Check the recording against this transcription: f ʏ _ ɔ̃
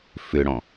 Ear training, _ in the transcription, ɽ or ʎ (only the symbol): ɽ